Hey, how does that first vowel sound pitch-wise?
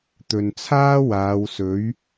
low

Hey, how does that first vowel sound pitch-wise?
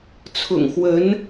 low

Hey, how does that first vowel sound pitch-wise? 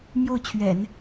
falling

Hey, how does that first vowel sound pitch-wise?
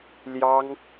high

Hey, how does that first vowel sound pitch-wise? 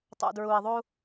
low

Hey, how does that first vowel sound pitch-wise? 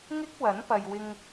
high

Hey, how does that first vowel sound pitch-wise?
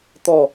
falling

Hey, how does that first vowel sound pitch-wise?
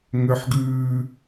high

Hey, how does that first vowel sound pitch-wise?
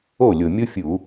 falling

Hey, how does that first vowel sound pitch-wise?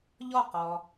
falling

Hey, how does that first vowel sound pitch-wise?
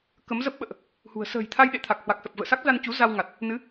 rising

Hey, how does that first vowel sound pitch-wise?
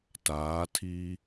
rising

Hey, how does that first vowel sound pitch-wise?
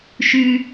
high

